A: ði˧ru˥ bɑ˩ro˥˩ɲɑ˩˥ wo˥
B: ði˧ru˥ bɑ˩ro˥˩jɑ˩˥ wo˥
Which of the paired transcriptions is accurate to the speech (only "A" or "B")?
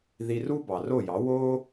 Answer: B